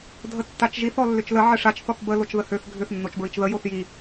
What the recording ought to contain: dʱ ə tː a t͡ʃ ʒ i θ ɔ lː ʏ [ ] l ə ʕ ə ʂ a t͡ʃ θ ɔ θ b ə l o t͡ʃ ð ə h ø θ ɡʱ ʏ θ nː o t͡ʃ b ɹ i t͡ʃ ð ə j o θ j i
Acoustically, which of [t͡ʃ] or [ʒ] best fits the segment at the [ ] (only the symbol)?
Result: t͡ʃ